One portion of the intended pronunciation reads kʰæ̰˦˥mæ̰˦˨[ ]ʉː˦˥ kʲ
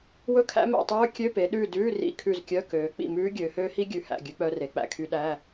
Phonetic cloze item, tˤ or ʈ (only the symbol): tˤ